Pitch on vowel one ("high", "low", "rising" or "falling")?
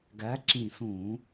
rising